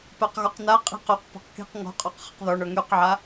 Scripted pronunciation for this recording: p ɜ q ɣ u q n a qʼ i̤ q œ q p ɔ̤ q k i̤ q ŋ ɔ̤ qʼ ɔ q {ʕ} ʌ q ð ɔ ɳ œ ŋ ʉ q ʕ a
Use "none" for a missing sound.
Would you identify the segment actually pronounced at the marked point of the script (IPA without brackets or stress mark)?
χ